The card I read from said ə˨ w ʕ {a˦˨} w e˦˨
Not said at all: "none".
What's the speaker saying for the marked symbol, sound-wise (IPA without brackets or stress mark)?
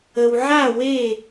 a˦˨